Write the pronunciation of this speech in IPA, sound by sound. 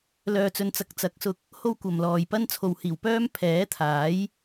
lœː˧t͡sɵ˧nt͡sɐ˧k̚ t͡sɐ˨˥k̚sʊ˧k̚ | ho˥wkʷɐ˨mlɔː˨j pɐ˥n t͡sʰo˨whiː˨˩wpœː˥m pʰɛː˨˥t̪ʰaː˨˥j

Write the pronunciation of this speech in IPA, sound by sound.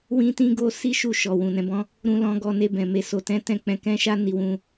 wĩ˦tĩ˦ɡo˦ si˦ʃu˦˨ʃɔ˨ wũ˨nɛ̃˧bɔ̃˦ | ɾũ˧lɔ̃˧ ɡɔ˧ne˧bɛ̃˨ me˧ so˨tɛ̃˨˦ tɛ̃˦k͡pɛ̃˧ kɛ̃˦ʃa˦ni˧ wũ˧

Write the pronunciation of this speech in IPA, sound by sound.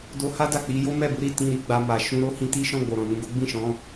do˧ha˦ da˦˨k͡pi˨˦jo˦ mɛ˦˨bu˨˦ ɾi˦˨ tĩ˧ɾi˧ ɡ͡ba˧ma˨ ʃũ˧ ɾo˦hĩ˦ ti˦ʃɔ̃˦˨ ɡ͡bo˨ɾɔ̃˨nũ˨˦ɡo˦ ɡ͡bĩ˦˨ʃɔ̃˨˦

